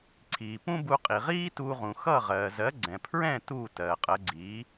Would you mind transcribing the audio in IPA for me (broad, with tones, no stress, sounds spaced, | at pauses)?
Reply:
ǀʰ iː˩ p ũ˥ b u˧ qʼ i˩ ʁ iː˥ t uː˧ ʁ ũ˩ x ʌ˥˩ ʁ ɜː˩ z ɜ˩˥ ɡ͡ǀ ɛ̃˩ pʰ ɹ ɛ̃˥˩ t uː˥˩ t ɜː˩ qʼ ɜ˩˥ ɡ͡ǀ iː˩˥